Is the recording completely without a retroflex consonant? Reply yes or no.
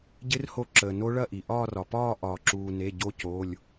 no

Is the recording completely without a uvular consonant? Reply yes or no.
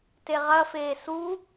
no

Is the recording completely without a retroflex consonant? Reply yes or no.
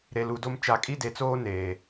yes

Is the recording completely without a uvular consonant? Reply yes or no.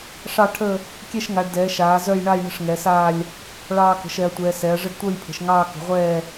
no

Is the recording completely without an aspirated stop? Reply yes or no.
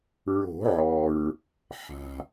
yes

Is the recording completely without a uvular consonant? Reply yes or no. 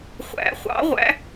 no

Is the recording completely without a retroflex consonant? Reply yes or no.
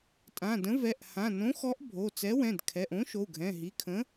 yes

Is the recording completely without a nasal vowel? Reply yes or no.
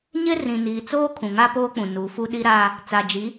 no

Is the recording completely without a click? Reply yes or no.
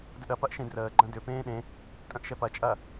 no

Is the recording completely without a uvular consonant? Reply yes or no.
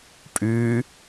yes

